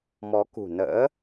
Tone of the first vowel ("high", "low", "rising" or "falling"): rising